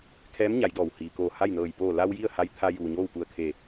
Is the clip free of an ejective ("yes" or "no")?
yes